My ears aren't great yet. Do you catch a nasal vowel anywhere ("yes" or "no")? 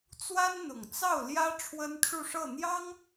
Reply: no